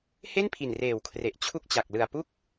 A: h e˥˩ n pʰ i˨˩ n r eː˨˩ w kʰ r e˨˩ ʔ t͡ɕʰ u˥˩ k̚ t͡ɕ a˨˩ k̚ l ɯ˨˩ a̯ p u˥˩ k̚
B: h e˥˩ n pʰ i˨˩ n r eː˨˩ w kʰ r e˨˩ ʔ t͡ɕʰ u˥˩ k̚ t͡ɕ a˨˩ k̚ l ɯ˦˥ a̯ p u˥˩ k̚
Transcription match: A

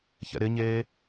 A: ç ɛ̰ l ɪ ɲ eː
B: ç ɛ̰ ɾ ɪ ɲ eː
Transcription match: B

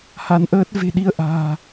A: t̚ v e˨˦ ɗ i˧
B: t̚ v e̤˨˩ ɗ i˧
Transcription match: B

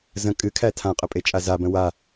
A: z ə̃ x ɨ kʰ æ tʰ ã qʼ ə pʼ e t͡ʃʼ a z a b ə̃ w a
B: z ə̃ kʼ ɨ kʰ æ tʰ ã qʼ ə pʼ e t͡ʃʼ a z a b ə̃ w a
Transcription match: B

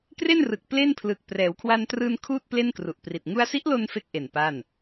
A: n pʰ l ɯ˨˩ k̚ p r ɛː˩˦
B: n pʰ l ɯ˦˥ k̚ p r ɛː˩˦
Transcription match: A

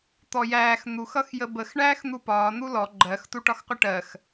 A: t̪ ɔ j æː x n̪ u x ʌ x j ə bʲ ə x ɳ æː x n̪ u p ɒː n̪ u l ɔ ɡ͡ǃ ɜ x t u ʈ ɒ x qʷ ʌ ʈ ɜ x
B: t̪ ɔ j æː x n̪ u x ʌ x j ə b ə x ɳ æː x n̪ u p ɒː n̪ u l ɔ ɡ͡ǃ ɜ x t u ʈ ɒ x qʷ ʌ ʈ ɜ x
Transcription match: B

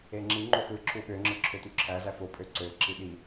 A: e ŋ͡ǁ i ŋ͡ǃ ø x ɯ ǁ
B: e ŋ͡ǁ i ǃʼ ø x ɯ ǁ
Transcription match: A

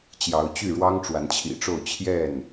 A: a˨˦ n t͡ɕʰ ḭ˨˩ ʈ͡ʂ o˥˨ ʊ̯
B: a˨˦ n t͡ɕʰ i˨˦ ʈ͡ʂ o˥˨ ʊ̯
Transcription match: A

